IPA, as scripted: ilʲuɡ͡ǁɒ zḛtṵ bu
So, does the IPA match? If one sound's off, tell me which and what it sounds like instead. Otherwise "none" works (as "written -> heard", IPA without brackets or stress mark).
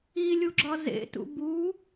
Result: none